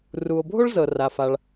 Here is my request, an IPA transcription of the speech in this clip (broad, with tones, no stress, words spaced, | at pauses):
ru˩o̯bʱo˥ɭ zɤ˩ra˩fa˩ɭ